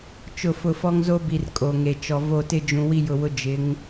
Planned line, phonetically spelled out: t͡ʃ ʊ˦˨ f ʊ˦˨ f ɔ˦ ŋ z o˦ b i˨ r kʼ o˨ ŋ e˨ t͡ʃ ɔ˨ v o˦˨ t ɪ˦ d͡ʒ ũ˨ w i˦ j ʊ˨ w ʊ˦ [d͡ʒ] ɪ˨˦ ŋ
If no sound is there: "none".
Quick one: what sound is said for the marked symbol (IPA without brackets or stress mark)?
d͡ʒ